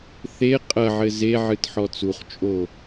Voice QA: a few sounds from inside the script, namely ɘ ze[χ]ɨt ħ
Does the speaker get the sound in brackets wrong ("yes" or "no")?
yes